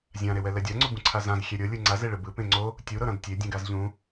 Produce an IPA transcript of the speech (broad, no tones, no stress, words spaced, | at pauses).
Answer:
zʲãɾewɛ lɛdʲaŋ͡ǀu bũǀʰazãz xʲɛɾʲɤlʲɯ ŋ͡ǀazeɭɯ bɯ pẽŋ͡ǀo | tʲu ɾɤɾãdtʲe dʲũɡazʎũ